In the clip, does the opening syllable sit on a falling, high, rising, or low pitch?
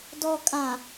low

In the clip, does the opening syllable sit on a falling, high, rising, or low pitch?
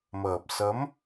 low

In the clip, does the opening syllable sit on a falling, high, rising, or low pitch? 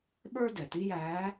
high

